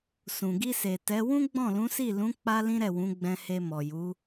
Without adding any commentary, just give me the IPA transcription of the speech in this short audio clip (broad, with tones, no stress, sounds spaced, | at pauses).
s ũ˨ ɡ i˧ s e˨ t ɛ˨˦ w ũ˦ ɡ͡b ɔ̃˦˨ l ũ˨˦ s i˦˨ l ũ˨˦ k͡p a˦ l ĩ˦ ɾ ɛ˦˨ w ũ˨˦ ɡ͡b ɛ̃˧ h e˧ m ɔ˨ j u˨˦